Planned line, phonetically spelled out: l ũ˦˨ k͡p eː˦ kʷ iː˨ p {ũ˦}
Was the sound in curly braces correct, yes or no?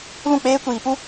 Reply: no